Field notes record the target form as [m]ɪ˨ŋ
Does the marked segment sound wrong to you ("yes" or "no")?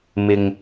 no